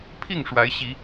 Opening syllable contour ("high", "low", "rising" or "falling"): falling